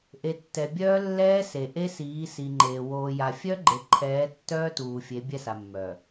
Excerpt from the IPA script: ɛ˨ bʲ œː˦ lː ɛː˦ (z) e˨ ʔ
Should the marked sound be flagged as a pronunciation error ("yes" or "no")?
yes